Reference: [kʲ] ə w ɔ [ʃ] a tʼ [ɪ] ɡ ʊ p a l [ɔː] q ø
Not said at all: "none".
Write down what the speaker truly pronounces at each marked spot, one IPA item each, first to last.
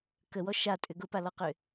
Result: k, ʃ, ʏ, ɔ

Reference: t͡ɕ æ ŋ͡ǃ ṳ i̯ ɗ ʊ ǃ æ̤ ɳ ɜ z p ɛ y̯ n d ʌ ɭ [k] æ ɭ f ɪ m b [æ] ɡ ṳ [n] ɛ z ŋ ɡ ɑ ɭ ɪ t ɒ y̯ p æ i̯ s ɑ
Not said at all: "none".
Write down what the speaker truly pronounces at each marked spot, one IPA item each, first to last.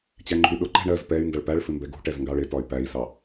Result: p, ɛ, ʈ

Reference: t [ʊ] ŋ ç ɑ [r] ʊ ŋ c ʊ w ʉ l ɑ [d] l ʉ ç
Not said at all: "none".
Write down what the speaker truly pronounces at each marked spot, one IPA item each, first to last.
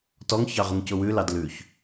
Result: ɔ, ʁ, d

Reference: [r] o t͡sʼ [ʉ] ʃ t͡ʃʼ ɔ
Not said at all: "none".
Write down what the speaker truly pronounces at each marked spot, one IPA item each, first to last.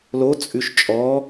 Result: l, ʉ

